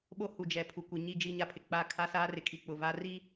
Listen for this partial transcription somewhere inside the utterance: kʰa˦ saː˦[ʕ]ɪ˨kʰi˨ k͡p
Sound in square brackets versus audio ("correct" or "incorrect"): incorrect